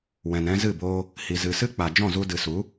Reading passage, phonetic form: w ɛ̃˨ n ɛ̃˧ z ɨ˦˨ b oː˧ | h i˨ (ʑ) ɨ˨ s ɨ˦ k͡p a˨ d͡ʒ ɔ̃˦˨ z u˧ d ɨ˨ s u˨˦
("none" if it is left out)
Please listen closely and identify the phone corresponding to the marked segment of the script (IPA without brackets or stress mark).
z